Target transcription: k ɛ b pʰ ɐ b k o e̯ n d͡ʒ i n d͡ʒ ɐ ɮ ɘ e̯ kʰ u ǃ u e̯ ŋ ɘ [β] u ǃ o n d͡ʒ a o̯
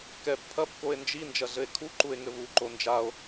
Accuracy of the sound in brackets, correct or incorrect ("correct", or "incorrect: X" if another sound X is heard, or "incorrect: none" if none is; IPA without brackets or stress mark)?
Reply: correct